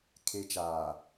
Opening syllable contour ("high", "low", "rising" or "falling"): low